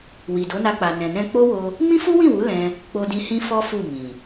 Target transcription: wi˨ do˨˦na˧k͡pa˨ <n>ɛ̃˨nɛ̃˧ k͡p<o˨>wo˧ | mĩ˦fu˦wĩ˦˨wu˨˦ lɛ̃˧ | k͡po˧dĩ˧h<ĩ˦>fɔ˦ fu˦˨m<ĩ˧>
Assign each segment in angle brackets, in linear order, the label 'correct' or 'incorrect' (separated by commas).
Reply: correct, incorrect, correct, incorrect